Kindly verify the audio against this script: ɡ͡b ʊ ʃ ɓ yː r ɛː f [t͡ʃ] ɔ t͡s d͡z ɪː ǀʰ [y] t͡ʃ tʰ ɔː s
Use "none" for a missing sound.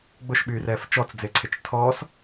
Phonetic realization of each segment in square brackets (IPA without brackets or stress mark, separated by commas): t͡ʃ, ɪ